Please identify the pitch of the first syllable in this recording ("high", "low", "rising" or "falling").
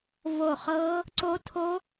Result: falling